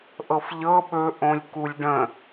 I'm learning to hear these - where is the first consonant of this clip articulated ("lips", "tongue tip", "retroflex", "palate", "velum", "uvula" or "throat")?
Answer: throat